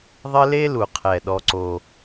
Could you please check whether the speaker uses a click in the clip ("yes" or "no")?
yes